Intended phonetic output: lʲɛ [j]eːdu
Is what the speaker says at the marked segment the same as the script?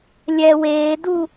no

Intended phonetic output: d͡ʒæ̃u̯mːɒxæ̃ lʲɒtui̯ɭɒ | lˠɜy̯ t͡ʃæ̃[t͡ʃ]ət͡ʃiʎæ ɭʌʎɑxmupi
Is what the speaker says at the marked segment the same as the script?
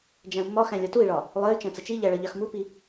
no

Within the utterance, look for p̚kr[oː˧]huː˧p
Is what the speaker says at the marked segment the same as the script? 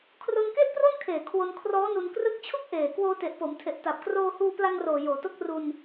yes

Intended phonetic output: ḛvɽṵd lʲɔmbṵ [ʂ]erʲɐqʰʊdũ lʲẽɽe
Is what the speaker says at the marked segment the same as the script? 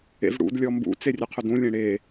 no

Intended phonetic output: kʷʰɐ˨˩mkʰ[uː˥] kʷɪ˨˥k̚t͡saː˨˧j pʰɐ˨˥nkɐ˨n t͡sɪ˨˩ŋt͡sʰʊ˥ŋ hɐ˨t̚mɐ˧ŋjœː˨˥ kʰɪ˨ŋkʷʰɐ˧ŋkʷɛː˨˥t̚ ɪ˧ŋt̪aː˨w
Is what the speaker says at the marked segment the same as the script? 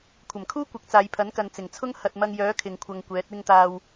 yes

